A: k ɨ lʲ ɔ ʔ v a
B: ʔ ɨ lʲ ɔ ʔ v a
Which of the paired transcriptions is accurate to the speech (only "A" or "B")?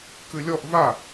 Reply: A